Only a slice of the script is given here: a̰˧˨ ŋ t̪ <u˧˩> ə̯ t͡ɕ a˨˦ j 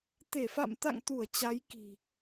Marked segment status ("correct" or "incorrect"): correct